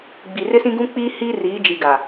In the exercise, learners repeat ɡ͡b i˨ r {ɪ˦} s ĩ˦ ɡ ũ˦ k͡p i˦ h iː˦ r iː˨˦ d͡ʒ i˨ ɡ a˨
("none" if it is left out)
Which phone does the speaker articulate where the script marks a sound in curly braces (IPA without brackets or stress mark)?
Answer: ɪ˦